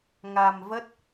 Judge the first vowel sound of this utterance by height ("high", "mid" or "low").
low